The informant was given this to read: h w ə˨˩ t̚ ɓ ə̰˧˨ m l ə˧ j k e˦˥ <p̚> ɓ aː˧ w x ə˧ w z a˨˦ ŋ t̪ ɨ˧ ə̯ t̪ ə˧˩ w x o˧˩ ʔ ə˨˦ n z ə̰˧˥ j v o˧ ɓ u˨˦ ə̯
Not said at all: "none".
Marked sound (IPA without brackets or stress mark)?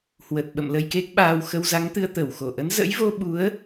k̚